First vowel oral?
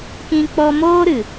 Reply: no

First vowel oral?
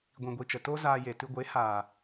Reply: no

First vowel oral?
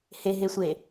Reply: yes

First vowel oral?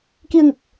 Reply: yes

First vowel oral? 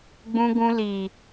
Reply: no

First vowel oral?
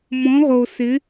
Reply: no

